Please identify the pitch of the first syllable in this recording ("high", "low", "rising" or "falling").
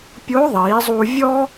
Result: rising